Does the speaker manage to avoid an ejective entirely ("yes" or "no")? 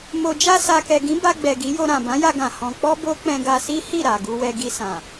yes